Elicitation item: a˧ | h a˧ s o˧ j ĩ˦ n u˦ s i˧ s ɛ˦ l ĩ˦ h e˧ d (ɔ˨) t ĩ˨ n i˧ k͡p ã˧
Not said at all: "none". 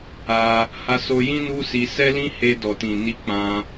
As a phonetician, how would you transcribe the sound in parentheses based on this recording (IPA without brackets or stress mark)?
ɔ˨